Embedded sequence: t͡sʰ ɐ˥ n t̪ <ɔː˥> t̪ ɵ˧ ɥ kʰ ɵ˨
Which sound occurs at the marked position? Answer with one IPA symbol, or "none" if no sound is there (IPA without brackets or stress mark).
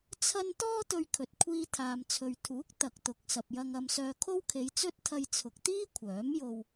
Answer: ɔː˥